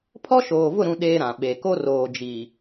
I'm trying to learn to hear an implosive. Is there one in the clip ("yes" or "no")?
yes